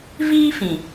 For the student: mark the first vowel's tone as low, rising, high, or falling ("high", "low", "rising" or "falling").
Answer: high